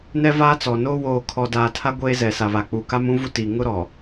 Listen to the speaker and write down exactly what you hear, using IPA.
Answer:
nɛ˦vaː˦t͡sɔ˨noː˦ woː˨kʰɔ˨daː˨ tʰa˦ ɡʷeː˦zɛ˨ sa˨βa˨k͡pu˨ka˦m ũ˦ vu˦tiː˨ ŋʊ˦ɾɔ˨

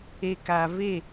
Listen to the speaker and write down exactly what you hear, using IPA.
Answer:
e˨ka˨ve˦˨

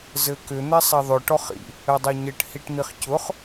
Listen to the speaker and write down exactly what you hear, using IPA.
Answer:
zɘkʏ n̪ɛsˤɛðˤʏ ʈɔχḭ | ɘdˤɛɲɘʈ hiʈn̪iχcʊχ

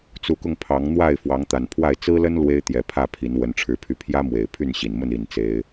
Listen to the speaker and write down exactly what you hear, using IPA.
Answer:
t͡su˨˦kʊ˧ŋ pʰɑ˨˦ŋn̪wa˥˨ɪ̯ fwɑ˨˦ŋt̪a˨˩npʰwa˥˨ɪ̯ t͡sɹ̩˦lə˦n lwe˦ɪ̯t̪jɛ˨˦pʰä˥˨pʰi˨˦n wə˦nʈ͡ʂʰɻ̩˦pʰy˦ pʰjä˦mwe˨˩ɪ̯ pʰy˥˨nɕi˨˩nmə˥˨n i˥˨nt͡se˦ɪ̯

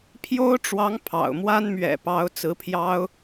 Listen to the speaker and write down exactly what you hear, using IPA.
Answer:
pʰjo˥ʊ̯ʈ͡ʂwɑ˧˥ŋ pʰɑ̰˨˩ʊ̯mwa˥n mɥɛ̰˨˩pɑ˧˥ʊ̯ t͡sɹ̩˧˥pʰjɑ˥ʊ̯

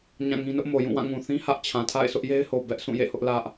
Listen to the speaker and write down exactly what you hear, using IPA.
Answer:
ɲã˦˨ŋĩ˦nʊ˦ʔ mo˨ jũ˦˨wã˦˨ŋũ˨ θĩ˦ hä˦ʔt͡ɕʰã˨tʰa̰˦˨ɪ̯ sʊ˦ʔje˦ɪ̯ho˨ bɛ˦ʔ sʰũ˦˨jḛ˦˨hʊ˦ʔ lä˦ʔ

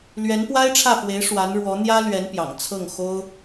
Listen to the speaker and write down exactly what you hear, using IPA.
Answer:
lɥɛ˧˥npwa˥ɪ̯ʈ͡ʂʰä˥˩fwe˧˥ɪ̯ ʂwa˧˥nɻwɔ˧˥n̪jä˥ lɥɛ˧˥n pjɑ̰˨˩ŋ t͡sʰɤ˥˩ŋxo˥ʊ̯

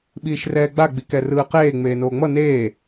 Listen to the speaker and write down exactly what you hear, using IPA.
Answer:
ɓiːʃrɛːɡ͡ba ɡ͡bikɛrɯːqeː ŋ͡meːnoːŋ͡mʌ neː

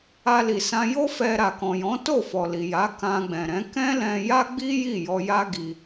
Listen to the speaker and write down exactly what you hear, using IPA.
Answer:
a˧li˨ sã˧jo˦ fɛ˧ɾa˨ kɔ̃˨ jɔ̃˨˦ to˦˨fɔ˨ li˨ja˨˦ kã˧ɡ͡bɛ̃˨ɾɛ̃˨˦ kɛ̃˦lɛ̃˧ja˦ɡ͡bi˦ ji˦˨jɔ˧ja˦ ɡi˦

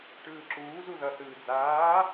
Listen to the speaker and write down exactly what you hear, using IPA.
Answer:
ʈɯːǁuː zuðʌ θɯːd͡zaː

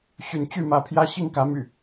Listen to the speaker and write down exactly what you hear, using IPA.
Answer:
ɕy˨˦nt͡ɕy˥˨mä˨˦pʰjä˦ ɕi˥˨ŋkä˨˦my̰˨˩

